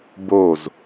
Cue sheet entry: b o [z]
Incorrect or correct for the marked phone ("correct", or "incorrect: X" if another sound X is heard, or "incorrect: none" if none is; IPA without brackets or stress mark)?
correct